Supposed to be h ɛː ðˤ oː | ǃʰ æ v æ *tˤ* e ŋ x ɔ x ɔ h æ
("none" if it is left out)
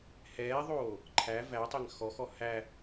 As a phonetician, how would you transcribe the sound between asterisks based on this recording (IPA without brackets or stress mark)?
tˤ